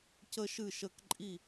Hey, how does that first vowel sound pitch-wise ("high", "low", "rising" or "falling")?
high